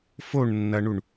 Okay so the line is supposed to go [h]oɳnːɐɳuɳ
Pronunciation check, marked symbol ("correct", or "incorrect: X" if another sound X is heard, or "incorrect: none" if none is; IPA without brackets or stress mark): incorrect: f